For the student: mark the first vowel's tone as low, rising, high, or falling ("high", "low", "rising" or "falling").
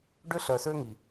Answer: high